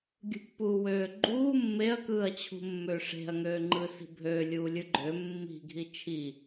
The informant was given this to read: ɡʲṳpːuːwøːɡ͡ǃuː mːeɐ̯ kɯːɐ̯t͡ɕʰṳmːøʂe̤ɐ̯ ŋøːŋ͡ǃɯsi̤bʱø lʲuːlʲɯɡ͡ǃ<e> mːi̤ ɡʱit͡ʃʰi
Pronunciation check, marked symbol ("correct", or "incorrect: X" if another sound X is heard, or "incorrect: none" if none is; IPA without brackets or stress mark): incorrect: ø